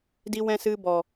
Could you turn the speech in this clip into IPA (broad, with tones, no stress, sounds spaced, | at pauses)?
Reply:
d i˧ w ɛ̃˧ s ɨ˧ b ɔ˨